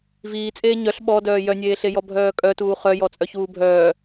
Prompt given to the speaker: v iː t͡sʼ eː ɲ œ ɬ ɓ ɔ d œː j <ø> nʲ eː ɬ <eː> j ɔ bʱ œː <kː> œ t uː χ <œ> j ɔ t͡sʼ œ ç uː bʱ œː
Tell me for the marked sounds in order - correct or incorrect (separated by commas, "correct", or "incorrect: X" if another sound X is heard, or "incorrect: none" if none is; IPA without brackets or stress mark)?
incorrect: œ, incorrect: e, incorrect: kʼ, correct